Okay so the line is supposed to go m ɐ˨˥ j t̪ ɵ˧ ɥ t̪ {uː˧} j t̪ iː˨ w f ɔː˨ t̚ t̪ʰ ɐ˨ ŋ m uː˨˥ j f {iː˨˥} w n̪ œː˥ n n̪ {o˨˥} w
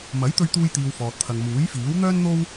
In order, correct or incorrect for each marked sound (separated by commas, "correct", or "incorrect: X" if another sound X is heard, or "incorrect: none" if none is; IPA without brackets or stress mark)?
correct, correct, incorrect: o˥